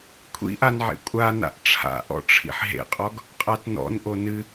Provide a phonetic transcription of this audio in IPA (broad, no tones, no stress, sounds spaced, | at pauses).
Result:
kʷʰ ḭ ʔ a n ʕ ḛ kʷʼ a n a̰ ʔ ʈ͡ʂʰ a̰ ʔ ɔ̰ ʈ͡ʂʰ ḭ ħ ɦ ḛ qʼ ɔ ɡ | qʼ a t n ɔ̰ n ʔ o n ɨ